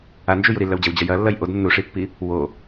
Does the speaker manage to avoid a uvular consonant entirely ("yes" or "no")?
yes